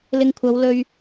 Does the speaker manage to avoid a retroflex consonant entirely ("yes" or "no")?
yes